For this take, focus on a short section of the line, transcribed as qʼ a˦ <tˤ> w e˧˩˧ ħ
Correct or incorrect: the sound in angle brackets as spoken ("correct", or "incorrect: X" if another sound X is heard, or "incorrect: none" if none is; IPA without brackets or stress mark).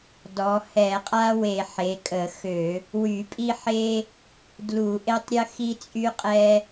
incorrect: none